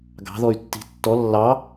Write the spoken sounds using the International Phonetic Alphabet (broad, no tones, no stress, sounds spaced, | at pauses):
ɡ ɑ̤ ð ɔ y̯ tː i̤ tː ɔ lː ɑ